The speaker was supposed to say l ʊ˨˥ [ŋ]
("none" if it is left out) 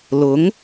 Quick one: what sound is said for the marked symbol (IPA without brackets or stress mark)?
ŋ